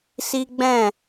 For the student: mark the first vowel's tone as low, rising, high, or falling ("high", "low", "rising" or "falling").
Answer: high